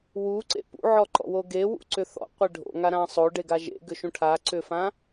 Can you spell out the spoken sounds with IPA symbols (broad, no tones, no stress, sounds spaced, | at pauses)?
w u ǀ ḛ p ṵ ʕ ɔ ǃ ɔ̰ w o ɡ e w ṵ ǀ ʏ θ ɔ̰ qʷ e ɖʱ o̰ ŋ a ɾ ã sˤ o ɖ e ɡ a ʒ ḛ ɡ ʏ ʃ ũ ʈʰ a ǀ ʏ f ã